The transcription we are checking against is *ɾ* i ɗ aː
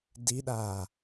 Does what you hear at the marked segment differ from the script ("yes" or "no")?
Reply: yes